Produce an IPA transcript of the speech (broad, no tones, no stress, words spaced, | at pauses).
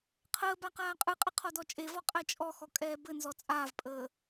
qʰəː baqaːqʼɯqʼɘ qʰɔdɔt͡ʃʼevɔ qʼɛt͡ʃʼɔxɔ kʼɛːbɘnzɔ t͡sʼaːvpʼəː